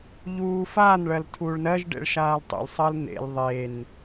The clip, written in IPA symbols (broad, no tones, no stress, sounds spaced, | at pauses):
ʎ uː f a n ɭ ɜ l tʰ uː ɭ n ɜ ʒ ɖ ḛ ɭ ʃ aː l tˤ ḛ l sˤ ɜ l n̪ ḛ l ðˤ e n